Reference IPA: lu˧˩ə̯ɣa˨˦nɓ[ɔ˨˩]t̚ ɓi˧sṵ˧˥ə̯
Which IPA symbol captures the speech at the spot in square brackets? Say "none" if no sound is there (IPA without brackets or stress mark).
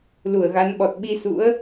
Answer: ɔ˨˩